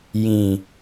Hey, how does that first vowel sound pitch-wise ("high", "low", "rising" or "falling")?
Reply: low